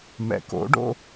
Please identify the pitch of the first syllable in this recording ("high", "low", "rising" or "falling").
low